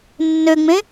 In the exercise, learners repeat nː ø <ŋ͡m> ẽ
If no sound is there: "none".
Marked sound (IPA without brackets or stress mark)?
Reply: ŋ͡m